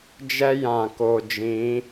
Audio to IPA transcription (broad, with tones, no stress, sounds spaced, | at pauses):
d͡ʒ ɛ˦ j ã˨ k o˨ d͡ʒ ĩ˨˦